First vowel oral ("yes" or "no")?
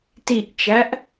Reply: yes